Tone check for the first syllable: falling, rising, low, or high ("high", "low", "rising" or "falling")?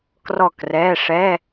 falling